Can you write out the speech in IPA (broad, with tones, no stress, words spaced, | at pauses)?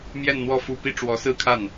mjɛ˥˧nn̪wɔ˥˩ fu˥ pi˥˩ ʈ͡ʂwɔ˧˥sɹ̩˥˧kʰa˥˩n